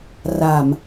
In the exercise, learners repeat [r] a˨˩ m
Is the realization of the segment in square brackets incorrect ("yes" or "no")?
no